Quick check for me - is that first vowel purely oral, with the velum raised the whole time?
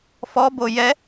yes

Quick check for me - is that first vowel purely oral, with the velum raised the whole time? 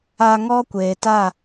yes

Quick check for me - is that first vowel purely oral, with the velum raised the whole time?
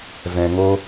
no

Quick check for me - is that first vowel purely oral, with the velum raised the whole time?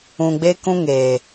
no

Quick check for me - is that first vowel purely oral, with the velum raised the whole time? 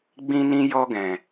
no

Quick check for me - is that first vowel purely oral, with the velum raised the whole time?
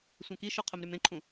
no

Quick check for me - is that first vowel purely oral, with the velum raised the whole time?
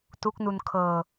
yes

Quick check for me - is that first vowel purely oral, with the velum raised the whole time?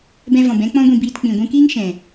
no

